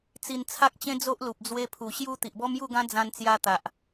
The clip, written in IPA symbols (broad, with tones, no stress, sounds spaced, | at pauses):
t͡s i˧ n t͡sʰ a˦ k̚ t͡ɕ ẽ˦ d͡z o˦ ʔ l u˨ p̚ d͡z w e˧ pʰ u˨˩ ɕ j u˧ t̪ i˨ ʔ b ɔ˦ m j u˥˧ ɡ ã˦ d͡z ã˧ n t͡s j a˧ t̪ a˨ ʔ